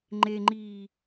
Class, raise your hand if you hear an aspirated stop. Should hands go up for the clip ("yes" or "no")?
no